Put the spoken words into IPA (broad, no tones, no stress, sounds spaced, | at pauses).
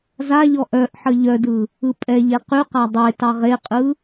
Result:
z a ʎ ɔ ʔ œ ʔ ħ ə ʎ œ d ɯ | ɯ pʼ ɛ ʎ e q y q a dˤ e t ɑ ʁ e qʼ ɯ